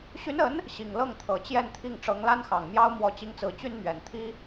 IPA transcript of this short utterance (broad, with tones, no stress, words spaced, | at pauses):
ɕy˧˥nə˧˥n | ɕi˨˩ŋ lɤ˥˩ŋt̪ʰɤ˨˩ t͡ɕjɛ˥˧nt̪ʰi˥˩ŋ ʈ͡ʂɤ˧˥ŋla˥nxɑ˨˩ŋmjɑ˥ʊ̯ mwɔ˧˥t͡ɕi˧˥ŋt͡sɹ̩˨˩ t͡ɕy˥nmɥɛ˨˩n t̪ʰi˥